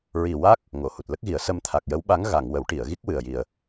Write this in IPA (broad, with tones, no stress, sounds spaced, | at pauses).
ɹ i˨˩ w a˦˥ k̚ | ŋ o˨˩˨ h u˨˩ t̚ l ə˦˥ k̚ ɣ i˨˩˦ ə̯ s ə˧ m t̪ʰ a˨˩ k̚ j ə˧˥ w ɓ a˧˥ ŋ ɣ a˨˩˨ ŋ w ə˨˩˦ w ʈ i˨˩˨ ə̯ ɣ i˦˥ k̚ w ɨ˨˩ ə̯ j i˨˩ ə̯